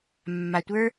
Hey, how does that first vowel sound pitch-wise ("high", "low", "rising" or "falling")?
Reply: low